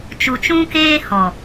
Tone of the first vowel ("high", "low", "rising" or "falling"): low